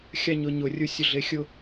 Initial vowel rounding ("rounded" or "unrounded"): unrounded